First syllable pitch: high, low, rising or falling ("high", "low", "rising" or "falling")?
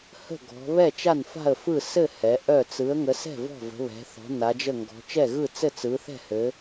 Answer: falling